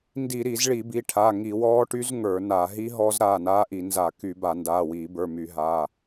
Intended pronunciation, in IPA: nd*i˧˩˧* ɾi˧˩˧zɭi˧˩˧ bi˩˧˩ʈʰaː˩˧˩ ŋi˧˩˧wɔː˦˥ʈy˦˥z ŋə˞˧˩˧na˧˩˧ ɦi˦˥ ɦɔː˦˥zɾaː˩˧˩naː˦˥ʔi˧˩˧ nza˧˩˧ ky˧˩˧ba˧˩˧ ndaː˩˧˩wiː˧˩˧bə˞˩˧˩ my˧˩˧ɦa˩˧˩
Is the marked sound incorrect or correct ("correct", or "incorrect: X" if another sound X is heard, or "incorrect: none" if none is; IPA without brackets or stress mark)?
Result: correct